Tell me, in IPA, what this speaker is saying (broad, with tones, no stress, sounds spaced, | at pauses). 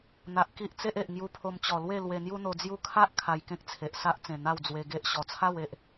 n̪ a˨ ʔ k i˦ ʔ t͡s e˦ ʔ e˨ ʔ ŋ j u˧ pʰ o˧ m t͡ɕ ɔ˨˩ l w e˥˧ l w e˧ n̪ j u˦ n̪ o˧ d͡z j u˦ kʰ a˦ ʔ kʰ a˧ j k ẽ˦ k̚ t͡sʰ e˨ ʔ s a˦ ʔ t͡s ẽ˨˩ n̪ a˥˧ w d͡z w e˧ ɡ e˦ ʔ ɕ ɔ˨˩ t͡sʰ a˥˧ w e˨ ʔ